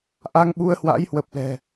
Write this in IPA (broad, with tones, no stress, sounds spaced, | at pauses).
ʔ a˧ ŋ ɓ u˧ ə̯ h w a̰˧˥ j h w ə˨˩ p̚ l ɛ̤˨˩